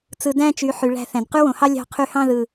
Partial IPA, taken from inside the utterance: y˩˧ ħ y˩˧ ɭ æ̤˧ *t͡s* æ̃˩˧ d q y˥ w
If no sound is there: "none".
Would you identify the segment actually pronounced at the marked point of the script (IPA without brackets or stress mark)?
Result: θ